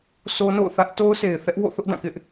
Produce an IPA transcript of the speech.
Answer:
s o˦ n o̰˦˨ ʊ̯ θ ä˦ ʔ t o˦ ʊ̯ sʰ e˨ ɪ̯ θ ɛ˦ ʔ w o̰˦˨ θ ʊ˦ ʔ d ã˦˨ k ɪ˦ ʔ

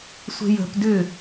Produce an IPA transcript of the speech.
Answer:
sʷ e̤ j ə̤ p d ʏ

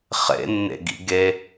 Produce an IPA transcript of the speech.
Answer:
χ ḛ nː ḛ ɡ ḭ ɡ e

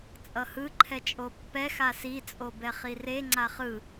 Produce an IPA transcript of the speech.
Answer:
t͡sʼ ʌ h ɯ ǃʰ ɛ t͡ʃʼ o pː ɛ x a s i t͡sʼ o b ɛ χ i r e ŋ͡ǀ a χ ɯ

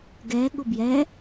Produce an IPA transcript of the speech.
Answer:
ɡ ɛ ɠ ʊ b j ɛ

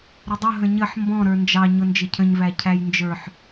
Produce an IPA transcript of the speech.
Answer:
ɾ ɪ dˤ ʊ ɦ ə̃ ɲ ə ħ m b ɔ̃ ɾ ə˞ n d͡ʒ ɑ ɲ ʊ n d͡ʒ ɪ cʰ ə̃ ɲ v æ cʰ æ j n d͡ʒ ə˞ ħ

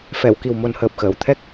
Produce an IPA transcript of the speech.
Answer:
f ɛ˨˩˨ w k i˨˩ w m o˨˩ n h əː˨˩ p̚ x əː˨˩˨ w t̪ʰ ɛ˦˥ k̚

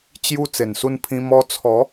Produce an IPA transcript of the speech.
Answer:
t͡ɕ j u˧ t͡s e˨˩ n s u˧ n pʰ ĩ˧ m ɔ˧ t͡sʰ ɔ˨˦

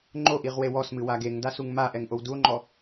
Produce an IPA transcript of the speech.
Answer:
ŋ͡ǃ o ʔ i ʁ w e w ɔ s m ɨ w a ɡ e ŋ d a s u ŋ m a ʔ ɛ ŋ ʔ o w d u o̯ ŋ͡ǃ ɔ

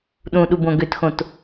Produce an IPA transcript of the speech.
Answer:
ɗ ũ ɗ u b õ ɡ ø t x õ t

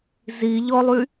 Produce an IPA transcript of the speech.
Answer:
z i ʎ ɔ lˠ y

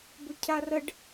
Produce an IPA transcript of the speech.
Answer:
b ɵ cʰ a r ə ɖ

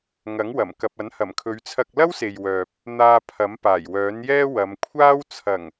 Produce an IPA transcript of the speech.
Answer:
ŋ ɐ˨˥ ŋ w ɐ˨˩ m k ɐ˨ p̚ ɐ˨˥ n h ɐ˨˩ m kʰ ɵ˨˧ ɥ t͡sʰ ɐ˧ k̚ l ɐ˥ w s e˨ j w œː˨ p̚ | n̪ aː˧ pʰ ɐ˨˥ m p aː˨˩ j w œː˨˥ n j ɛː˥ w ɐ˨˧ m kʷʰ aː˥ w t͡sʰ ɐ˨˩ ŋ

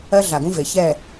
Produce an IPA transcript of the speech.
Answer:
ɜ˦ ɮ a˨ ɡ ũ˦ v e˨ ç ɛ˦˨

